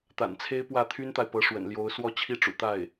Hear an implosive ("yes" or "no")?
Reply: no